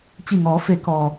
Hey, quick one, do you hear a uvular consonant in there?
no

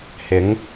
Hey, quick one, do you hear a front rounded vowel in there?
no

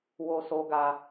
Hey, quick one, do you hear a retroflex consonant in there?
no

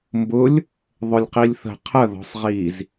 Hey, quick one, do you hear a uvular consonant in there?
yes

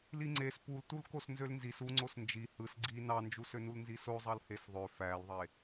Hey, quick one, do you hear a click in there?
yes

